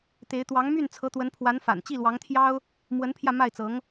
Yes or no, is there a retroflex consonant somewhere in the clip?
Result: no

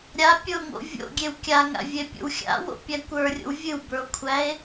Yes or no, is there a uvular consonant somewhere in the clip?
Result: no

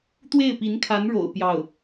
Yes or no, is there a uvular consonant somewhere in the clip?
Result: no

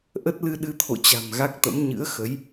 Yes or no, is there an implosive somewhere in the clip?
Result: yes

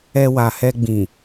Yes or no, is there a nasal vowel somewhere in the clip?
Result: yes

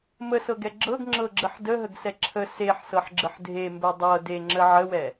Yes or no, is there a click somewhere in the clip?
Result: yes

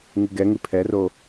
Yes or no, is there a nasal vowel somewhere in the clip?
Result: no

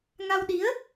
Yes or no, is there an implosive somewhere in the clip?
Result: yes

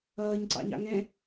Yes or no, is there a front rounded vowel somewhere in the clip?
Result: no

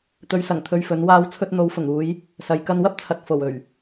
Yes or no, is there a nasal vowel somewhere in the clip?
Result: no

